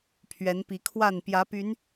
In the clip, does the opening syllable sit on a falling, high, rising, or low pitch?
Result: rising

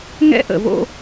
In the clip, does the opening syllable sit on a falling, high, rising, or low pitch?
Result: high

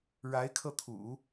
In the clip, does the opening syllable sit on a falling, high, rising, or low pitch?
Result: rising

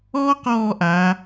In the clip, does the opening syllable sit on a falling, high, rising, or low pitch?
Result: high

